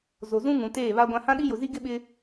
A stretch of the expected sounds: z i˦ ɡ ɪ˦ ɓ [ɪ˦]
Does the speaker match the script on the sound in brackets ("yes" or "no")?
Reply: yes